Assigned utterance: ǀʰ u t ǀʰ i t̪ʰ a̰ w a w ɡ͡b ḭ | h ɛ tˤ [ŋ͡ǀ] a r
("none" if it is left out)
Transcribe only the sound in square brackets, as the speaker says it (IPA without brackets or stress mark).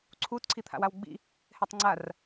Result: ŋ͡ǀ